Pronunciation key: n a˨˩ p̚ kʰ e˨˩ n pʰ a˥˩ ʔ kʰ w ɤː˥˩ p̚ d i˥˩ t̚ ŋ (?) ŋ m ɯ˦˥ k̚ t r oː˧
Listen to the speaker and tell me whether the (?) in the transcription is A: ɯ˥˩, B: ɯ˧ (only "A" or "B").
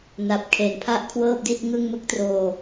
A